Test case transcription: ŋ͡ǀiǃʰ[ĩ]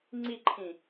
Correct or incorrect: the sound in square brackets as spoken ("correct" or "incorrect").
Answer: correct